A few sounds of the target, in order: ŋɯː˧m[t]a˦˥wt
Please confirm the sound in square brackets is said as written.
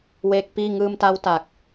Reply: yes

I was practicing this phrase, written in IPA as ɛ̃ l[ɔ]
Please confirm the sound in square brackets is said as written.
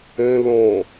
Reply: no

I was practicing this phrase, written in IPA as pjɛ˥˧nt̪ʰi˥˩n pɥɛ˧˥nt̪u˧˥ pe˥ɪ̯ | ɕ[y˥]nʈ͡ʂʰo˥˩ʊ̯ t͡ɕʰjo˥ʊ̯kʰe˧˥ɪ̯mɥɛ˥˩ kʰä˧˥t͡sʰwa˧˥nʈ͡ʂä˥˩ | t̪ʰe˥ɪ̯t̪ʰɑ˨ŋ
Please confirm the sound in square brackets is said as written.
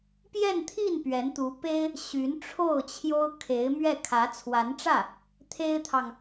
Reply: no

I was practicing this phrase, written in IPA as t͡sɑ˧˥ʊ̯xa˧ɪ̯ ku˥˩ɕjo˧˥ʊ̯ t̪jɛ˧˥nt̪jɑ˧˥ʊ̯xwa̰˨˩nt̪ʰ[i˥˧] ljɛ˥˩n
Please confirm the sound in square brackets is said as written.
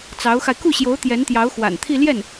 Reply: yes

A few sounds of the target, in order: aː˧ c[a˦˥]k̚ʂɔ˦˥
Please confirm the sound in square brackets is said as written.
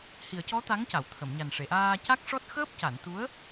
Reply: yes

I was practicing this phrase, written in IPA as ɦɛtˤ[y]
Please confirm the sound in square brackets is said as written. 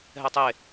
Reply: no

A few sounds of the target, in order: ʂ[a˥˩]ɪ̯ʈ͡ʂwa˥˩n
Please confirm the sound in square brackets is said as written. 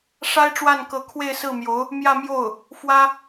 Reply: no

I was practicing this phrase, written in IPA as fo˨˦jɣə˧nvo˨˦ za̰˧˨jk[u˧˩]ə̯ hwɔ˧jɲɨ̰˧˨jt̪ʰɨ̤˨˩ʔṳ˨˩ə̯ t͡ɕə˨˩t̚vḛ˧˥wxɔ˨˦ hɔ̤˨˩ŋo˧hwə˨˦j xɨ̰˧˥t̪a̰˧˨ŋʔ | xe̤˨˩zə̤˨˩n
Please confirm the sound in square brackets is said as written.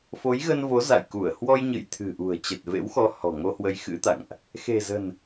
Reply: yes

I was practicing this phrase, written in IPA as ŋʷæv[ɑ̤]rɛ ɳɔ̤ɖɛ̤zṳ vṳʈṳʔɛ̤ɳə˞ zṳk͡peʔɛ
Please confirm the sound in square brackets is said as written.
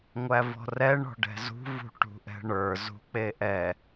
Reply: no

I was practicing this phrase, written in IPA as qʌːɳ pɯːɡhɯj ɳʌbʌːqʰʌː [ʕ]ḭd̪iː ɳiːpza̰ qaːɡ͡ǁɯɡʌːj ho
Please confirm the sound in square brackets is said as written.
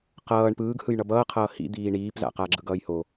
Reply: no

